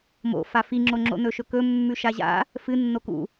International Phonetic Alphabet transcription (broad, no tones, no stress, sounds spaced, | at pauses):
m o̰ f a f i ŋ͡ǁ o ŋ͡ǁ o̰ n ɵ ʃ ɵ k ɵ mː ʉ ʃ a ʑ a̰ | f ɨ nː o k ṵ